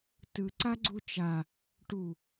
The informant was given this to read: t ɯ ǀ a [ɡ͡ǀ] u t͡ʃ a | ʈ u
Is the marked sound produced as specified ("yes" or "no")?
yes